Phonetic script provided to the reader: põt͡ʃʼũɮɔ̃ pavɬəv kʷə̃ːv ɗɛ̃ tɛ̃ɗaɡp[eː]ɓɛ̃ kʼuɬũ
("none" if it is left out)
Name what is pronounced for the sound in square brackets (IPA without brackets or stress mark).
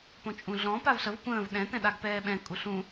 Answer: ɛː